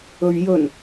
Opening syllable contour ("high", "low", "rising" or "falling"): low